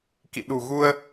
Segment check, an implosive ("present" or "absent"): present